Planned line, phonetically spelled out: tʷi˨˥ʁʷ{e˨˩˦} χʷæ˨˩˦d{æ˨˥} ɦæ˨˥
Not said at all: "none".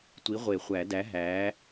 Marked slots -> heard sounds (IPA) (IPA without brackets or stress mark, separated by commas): e˨˩˦, æ˨˥